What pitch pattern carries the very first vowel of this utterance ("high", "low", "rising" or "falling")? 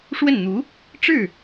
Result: falling